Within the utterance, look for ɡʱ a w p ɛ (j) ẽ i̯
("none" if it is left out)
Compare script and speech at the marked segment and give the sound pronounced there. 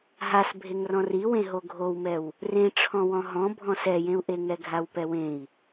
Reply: w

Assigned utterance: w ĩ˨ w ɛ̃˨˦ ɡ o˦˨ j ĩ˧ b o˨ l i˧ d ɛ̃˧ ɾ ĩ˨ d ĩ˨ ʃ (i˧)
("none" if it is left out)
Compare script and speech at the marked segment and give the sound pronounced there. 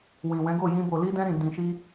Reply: i˧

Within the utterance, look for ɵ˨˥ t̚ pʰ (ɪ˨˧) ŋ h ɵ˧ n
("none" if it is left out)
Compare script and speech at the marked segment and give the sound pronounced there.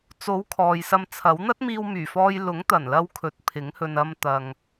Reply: ɪ˨˥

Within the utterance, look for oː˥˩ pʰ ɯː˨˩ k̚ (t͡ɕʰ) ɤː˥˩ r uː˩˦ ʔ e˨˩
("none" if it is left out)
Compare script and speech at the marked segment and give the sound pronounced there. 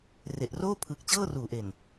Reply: t͡ɕ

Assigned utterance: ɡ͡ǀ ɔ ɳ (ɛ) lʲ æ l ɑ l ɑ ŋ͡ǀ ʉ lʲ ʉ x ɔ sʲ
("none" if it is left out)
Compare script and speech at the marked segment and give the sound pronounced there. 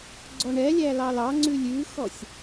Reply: ɛ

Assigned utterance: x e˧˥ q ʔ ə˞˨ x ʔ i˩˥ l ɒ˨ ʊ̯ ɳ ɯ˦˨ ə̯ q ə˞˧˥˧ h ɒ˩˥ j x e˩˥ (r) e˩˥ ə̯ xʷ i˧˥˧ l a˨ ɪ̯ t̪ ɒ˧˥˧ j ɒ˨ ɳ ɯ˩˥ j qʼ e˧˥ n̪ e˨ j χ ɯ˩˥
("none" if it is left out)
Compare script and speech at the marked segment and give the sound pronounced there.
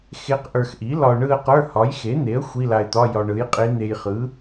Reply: n̪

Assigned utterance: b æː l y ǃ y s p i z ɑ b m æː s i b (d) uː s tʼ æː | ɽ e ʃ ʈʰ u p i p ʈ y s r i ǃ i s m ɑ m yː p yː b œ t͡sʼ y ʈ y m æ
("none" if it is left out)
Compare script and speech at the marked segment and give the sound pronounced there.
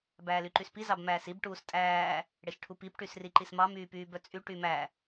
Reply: ʈ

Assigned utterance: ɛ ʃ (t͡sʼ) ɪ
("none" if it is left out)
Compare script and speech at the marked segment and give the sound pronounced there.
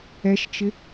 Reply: t͡ʃ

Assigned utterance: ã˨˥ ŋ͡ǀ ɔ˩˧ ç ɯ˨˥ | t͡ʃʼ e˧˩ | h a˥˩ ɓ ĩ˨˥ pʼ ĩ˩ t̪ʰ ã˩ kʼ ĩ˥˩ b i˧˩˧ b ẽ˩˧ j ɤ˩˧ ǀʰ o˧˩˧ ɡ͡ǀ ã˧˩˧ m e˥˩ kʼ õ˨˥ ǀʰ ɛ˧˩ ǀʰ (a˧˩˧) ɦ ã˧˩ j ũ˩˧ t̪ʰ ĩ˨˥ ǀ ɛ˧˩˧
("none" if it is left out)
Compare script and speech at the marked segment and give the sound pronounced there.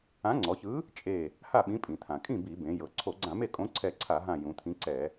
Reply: a˧˩˧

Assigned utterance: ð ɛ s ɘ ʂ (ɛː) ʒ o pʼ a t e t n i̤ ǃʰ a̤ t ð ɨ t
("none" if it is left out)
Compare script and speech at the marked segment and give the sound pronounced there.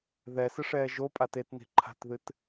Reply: ɛː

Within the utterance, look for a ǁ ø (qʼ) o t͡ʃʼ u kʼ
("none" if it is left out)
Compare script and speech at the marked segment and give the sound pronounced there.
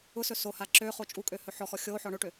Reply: χ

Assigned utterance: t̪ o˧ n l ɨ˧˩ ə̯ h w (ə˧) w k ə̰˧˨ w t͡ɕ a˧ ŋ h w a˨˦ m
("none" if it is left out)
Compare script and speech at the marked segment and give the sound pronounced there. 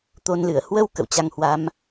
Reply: ə˧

